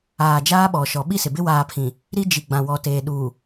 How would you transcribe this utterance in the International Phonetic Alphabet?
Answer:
aː˨ d͡ʒaː˦ɓɔ˨ʃɔ˨ ɓi˦sɪ˨ bɪ˦ waː˨ pʰĩ˨ | ɾi˦d͡ʒi˨ ɡ͡bã˨wɔ˨teː˨ ɗuː˨

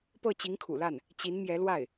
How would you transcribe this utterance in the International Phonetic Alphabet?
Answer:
pɤ˥˩t͡ɕi˧˥ŋkʰṵ˨˩la˥˩n | t͡ɕi˧˥nmjɛ˧˥lwa˥˩ɪ̯

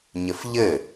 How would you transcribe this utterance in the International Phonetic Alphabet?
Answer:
ɲɘfʎɘ

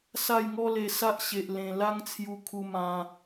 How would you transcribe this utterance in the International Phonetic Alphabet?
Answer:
sa˥˧jŋɔ˦le˧ sa˦ʔɕe˨ʔ lẽ˨˩ la˦ŋt͡sʰju˧ kʰu˧mã˧

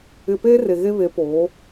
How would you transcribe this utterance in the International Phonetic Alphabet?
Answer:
ɪ˨pe˦ re˨ɣe˦βe˨˦poː˨˦

